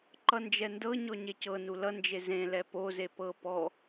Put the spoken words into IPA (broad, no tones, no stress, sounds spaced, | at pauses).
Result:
ǃ ʌ n d͡ʒ ɛ n d ɤ ɲ ɔ ɲ e c ɤ n u l ʌ n d͡ʒ e z ẽ l ɛ p o z e p ɤ p ɔ